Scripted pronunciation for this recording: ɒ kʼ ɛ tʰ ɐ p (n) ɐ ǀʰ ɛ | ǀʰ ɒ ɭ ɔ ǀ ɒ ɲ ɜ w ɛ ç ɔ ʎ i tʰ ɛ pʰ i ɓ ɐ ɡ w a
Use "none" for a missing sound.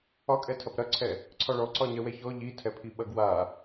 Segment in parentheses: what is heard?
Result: ɾ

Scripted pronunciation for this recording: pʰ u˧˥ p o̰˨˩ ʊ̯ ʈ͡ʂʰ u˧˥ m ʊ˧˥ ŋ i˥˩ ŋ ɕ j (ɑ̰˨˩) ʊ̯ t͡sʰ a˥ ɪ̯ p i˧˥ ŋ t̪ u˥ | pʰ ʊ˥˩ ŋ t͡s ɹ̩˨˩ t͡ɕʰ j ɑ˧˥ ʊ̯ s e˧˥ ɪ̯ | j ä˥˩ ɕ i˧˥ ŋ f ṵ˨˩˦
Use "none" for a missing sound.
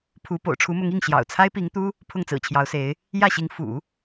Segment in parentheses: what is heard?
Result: ɑ̰˨˩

